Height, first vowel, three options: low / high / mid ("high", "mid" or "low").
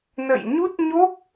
mid